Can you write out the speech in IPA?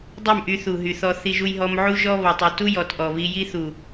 dˤ u˦˨ m ʔ y˧ θ u˨ ɦ y˨ θ ɔ˧ θ i˧ ʒ u˧ j ɦ ɔ˧ m ʕ u˦ ʒ ɔ˦ β ɔ˨ tˤ u˨ t u˦ j ɔ˨ t ʔ ɔ˨ β i˧ j i˦ θ u˨

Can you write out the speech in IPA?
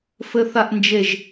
f ɘ θ a ʔ n d͡ʒ e ʒ

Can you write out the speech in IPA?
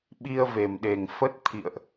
ɓ i˧ ə̯ v e˨˩ m ɗ e˨˩ ŋ f ə˦˥ t̚ t̪ʰ ḭ˧˨ ə̯ ʔ

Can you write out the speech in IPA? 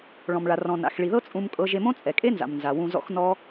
ɭ ɔ̃˨ m ɭ a˨ r ɔ̃˨ n a̰˨ x ɭ i˨ ð ɤ˦ t͡sʼ ũ˦ m kʼ ɤ˦ ʒ e˧ m õ˦ t͡sʼ ɛ˨ kʼ e˦ n z a̰˨ m n z a˨ w ũ˧ z ɔ̰˦ x n ɔ˦

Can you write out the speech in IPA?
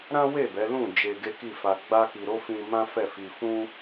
ɾ ã˦ w e˦˨ b ɛ˨˦ l ũ˦˨ d͡ʒ e˧ ɡ e˦ k i˦˨ f a˧ ɡ͡b a˦ k i˧ ɾ o˦ f ĩ˧ m ã˦ f ɛ˦˨ f i˧ f ũ˦

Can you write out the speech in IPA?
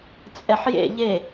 t͡sʼ ɛ ħ j ḛ ʎ e

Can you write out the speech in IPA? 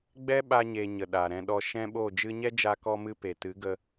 ɡ͡b ɛ˦ ɓ a˧ ɲ e˨ ɲ ə˨ ɗ aː˨ ɾ ɛ̃˧ ɗ ɔ˧ ʃ ɛ̃˦ ɓ oː˦˨ d͡ʒ ɨ˦ ɲ ɛ˦ d͡ʒ aː˧ k ɔ˧ m ɨ˧ p e˨ t ɨ˨˦ ɡ ə˧

